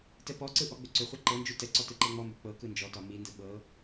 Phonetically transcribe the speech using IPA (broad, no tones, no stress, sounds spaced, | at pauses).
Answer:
t ɛ p ɔ ǀ ɯ ʔ ɔ ɡ͡b ʏ ǀ ʏ χʷ ɤ ǃ ɤ n d͡ʒ u t ɛ ǀ ɔ t ɯ ǃ ɛ ŋ͡m ɔ m b ʏ k͡p ɤ k ɯ n d͡ʒ ɔ t ɒ m i n d ɯ ɓ ɤ